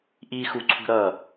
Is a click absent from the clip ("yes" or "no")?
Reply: no